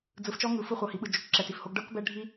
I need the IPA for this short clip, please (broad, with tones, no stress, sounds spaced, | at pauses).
d͡z ɯ˧ f t͡ʃ ɔ˦ ŋ ɯ˨˦ f ɯ˧ χʷ ɤ˨ h i˨ ɓ ɯ˨ d͡ʒ o˨ k ǁ ɛ˨ t i˨ f h o˧ ɡ ɖ ɤ˦ k b ɛ˦ ɖʱ i˦